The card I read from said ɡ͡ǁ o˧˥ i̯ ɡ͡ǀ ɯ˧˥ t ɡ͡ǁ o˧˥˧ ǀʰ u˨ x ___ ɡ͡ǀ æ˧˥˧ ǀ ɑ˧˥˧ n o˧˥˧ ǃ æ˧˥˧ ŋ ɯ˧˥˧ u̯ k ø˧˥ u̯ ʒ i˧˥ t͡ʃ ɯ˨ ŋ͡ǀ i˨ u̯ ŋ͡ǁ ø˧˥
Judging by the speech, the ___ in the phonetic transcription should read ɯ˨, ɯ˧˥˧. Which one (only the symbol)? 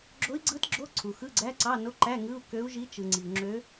ɯ˧˥˧